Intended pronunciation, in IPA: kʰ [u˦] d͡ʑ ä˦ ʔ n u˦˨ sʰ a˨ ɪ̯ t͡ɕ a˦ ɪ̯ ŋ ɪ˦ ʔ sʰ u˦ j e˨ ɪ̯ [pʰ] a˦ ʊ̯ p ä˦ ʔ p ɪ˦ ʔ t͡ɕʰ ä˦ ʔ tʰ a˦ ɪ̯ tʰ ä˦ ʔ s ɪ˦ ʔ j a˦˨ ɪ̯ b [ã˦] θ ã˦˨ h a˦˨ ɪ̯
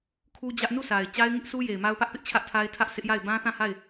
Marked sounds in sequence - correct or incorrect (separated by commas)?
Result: correct, incorrect, correct